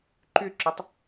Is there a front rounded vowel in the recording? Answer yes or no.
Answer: yes